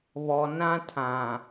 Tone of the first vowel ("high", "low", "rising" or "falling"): low